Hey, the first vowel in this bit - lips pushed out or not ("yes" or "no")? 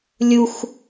yes